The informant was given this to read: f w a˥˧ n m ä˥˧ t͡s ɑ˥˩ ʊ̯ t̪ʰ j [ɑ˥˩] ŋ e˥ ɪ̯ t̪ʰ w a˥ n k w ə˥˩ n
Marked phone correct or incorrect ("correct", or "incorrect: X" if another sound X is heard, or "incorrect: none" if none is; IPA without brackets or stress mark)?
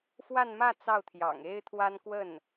incorrect: ɑ̰˨˩